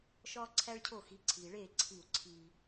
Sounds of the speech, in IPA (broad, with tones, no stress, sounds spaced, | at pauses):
ʃ ɒː˦ ǀʰ æ˦ ɭ cʰ o˦˨ x i˨˦ ǀʰ iː˨ ɭ eː˦˨ ǀʰ i˦˨ u̯ ǀʰ iː˦